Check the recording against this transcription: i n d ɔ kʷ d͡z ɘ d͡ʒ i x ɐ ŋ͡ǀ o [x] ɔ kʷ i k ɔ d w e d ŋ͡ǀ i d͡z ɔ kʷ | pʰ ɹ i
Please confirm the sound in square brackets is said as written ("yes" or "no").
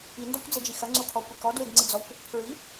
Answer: no